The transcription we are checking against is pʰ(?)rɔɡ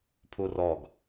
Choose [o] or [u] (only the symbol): u